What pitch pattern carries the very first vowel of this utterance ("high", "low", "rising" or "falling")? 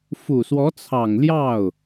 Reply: low